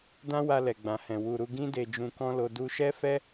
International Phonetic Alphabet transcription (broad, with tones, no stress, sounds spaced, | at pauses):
d ã˦ w a˧ l ɛ˨ ɡ͡b ã˨ h ɛ̃˨ w u˨ ɾ u˧ ɡ ĩ˦ d e˧ d͡ʒ ũ˧ k ɔ̃˦ l o˧ d u˧ ʃ ɛ˦ f ɛ˦